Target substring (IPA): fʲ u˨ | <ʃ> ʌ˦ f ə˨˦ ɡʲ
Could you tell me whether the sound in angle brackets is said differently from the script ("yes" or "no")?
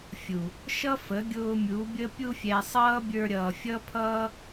no